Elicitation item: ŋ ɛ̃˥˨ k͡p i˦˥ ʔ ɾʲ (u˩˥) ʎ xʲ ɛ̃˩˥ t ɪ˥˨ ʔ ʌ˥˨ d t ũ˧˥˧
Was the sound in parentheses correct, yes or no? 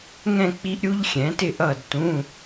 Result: no